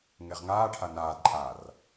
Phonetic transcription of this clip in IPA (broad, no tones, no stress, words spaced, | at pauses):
ŋeʁŋaːʈʰa naːdǃʼaːr